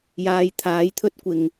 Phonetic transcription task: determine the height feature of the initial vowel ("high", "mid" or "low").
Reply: low